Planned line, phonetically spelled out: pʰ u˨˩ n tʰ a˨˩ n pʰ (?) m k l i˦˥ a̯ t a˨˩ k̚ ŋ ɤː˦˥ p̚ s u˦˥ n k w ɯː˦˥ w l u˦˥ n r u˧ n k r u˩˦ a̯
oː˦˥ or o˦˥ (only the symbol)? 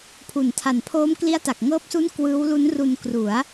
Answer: oː˦˥